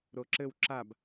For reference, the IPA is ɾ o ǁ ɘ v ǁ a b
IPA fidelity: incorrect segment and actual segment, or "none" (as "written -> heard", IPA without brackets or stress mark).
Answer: v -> w